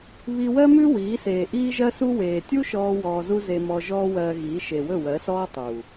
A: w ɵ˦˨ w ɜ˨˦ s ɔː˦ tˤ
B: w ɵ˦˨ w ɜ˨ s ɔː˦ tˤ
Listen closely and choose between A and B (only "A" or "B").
A